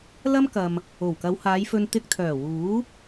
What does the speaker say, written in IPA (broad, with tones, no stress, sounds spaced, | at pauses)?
l ɐ˥ m k ɐ˨ m | o˨˩ w k ɐ˨˧ w h aː˨˧ j f ɵ˧ n t̪ ɪ˧ k̚ t̪ʰ œː˨˩ w uː˨˥